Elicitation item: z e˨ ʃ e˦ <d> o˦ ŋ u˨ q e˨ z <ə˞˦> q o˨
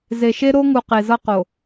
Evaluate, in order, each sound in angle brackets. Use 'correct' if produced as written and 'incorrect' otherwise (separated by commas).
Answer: incorrect, incorrect